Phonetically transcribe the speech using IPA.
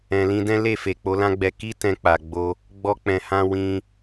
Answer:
ɛ̃˨ l ĩ˧ d ɛ̃˦ l e˦˨ f e˨ k͡p o˨˦ l ã˦ ɡ͡b ɛ˧ k i˦ t ɛ̃˧ k͡p a˨ ɡ͡b o˧ | ɡ͡b ɔ˧ k͡p ɛ̃˨ h ã˧ w ĩ˧

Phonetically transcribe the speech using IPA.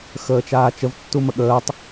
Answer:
x əː t͡ʃ aː t͡ʃ ə v tː u m ə ɠ əː tˤ

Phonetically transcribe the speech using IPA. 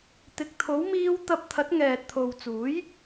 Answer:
t̪ ɪ˨ k̚ t̪ʰ o˨˥ w m iː˧ w t̪ ɐ˧ p̚ t̪ʰ ɐ˨˥ t̚ ŋ ɛː˨ t̚ t̪ʰ o˨ w t͡s uː˨˥ j

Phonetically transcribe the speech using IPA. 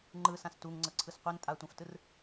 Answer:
ŋ͡ǃ ɯ s ã s t u ŋ ŋ͡ǀ ɤ ǀʰ ɯ s qʷ e n tʼ a tʷ ã f t ɯ r

